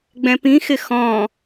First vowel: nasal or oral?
nasal